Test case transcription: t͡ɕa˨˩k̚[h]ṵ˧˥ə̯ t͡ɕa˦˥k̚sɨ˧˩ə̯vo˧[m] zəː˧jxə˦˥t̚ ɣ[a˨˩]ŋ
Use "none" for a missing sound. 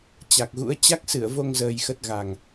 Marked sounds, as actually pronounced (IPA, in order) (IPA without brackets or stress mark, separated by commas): ɣ, ŋ, a˨˩